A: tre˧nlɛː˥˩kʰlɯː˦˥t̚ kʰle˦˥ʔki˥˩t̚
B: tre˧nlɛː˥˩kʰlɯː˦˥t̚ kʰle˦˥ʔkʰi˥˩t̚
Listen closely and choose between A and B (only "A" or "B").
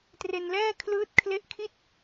B